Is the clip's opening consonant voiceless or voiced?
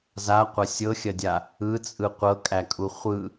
voiced